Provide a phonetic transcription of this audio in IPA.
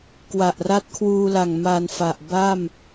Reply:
k w a˨˩ ʔ r a˦˥ t̚ kʰ w uː˧ l a˨˩ ŋ m a˧ n f a˨˩ ʔ b a˥˩ m

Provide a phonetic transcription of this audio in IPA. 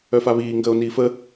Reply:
œ f a β iː ŋ ɡ əː o̯ n iː f ə

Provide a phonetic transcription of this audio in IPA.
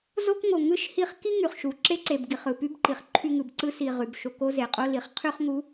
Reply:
z o˦ k ŋ o˨ ŋ ɯ˦ ʃ h i˦˨ χ k i˦ ŋ y˨ χ ʃ u˨ ǁ e˦ ǀ e˨ b ɡ i˨ χ ɯ˨ p y˦ b ǃ i˨ χ ǃʰ y˦ ŋ ɯ˨ b ǀ ɯ˦ s i˦˨ ʁ y˨ b ʃ o˦˨ k o˦ z e˨ qʼ o˦ l i˨ χ qʰ y˦ χ ŋ u˨˦

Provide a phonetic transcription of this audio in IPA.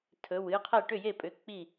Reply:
tʰ ɵ˩˧˩ w ɨ˧˥ qʰ ɛ˥˩ ʈ ʏ˥˩ j e˥˩ pʼ ʏ˩˧˩ k͡p i˥˩

